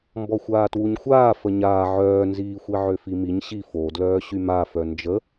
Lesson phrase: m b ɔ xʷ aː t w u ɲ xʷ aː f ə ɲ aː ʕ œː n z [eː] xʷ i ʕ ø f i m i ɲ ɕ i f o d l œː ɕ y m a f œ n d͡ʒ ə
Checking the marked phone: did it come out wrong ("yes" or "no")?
yes